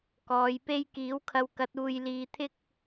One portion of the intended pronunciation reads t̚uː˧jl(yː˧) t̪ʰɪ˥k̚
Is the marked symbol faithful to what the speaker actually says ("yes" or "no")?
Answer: no